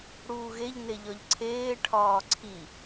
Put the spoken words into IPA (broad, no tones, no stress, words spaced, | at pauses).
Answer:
ɽuːɣeʎ neʎɒʎǀʰeː ʈʰɒːǀʰi